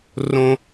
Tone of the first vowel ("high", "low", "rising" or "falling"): high